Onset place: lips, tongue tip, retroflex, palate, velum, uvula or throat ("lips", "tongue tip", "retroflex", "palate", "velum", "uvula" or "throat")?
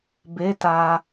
lips